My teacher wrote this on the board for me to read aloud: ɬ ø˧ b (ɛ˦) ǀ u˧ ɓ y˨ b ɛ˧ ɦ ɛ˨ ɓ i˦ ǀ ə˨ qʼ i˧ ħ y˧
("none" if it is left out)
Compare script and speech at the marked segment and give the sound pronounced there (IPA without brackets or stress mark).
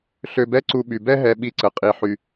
ɛ˦